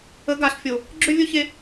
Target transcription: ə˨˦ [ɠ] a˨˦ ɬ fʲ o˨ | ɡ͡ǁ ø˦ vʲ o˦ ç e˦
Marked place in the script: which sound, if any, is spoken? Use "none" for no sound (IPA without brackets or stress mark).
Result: ɡ